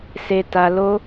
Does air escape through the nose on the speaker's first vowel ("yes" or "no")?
no